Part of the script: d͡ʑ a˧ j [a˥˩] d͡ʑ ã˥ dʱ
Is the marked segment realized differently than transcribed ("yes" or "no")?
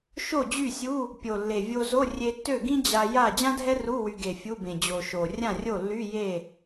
no